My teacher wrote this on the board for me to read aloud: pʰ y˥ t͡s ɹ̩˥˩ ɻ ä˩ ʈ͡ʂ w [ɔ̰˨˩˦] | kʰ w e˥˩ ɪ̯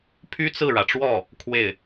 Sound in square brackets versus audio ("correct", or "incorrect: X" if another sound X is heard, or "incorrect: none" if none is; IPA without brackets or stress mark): incorrect: ɔ˥˩